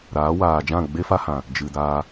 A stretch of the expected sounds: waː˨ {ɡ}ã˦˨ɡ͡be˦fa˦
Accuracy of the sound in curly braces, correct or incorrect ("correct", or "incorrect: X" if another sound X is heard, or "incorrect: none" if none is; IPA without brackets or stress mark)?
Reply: incorrect: d͡ʒ